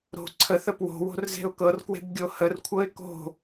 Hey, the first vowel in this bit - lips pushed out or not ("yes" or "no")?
yes